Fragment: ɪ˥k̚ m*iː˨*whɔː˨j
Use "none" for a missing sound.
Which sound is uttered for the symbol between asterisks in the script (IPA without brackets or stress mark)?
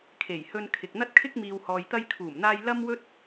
iː˨